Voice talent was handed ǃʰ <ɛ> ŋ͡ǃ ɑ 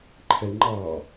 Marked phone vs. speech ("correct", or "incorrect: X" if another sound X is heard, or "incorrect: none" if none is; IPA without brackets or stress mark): correct